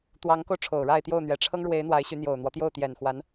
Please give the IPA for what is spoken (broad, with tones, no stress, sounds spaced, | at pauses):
t̪ w ɑ˧˥ ŋ k o˧ ʊ̯ ʈ͡ʂʰ o˨˩ ʊ̯ ɻ a˥˧ ɪ̯ t̪ j o˥˩ ʊ̯ n̪ ɥ ɛ˨˩ ʈ͡ʂʰ ɤ˥ ŋ ɻ w e˧˥ ɪ̯ n̪ w a˧˥ ɪ̯ ɕ y˧˥ n̪ j o˨˩ ʊ̯ n̪ w ɔ˦ t̪ j o˥˩ ʊ̯ t̪ j ɛ˨˩ n x w a˧˥ n